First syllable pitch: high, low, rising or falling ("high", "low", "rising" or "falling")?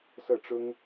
falling